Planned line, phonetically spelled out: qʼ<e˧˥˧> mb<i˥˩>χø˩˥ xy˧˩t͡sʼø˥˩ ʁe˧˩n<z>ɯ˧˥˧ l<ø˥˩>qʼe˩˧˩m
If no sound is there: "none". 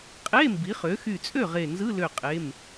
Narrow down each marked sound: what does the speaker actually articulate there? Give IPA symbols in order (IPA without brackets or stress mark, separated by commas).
e˧˥˧, i˩˥, z, ø˧˩